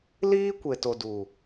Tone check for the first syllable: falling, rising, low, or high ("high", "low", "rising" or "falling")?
high